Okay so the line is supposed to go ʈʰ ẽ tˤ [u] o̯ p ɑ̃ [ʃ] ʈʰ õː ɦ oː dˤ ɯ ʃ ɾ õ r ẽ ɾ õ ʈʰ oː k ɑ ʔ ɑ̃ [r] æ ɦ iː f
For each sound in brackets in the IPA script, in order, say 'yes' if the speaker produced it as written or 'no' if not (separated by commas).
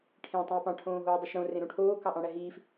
no, no, no